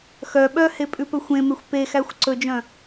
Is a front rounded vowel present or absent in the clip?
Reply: present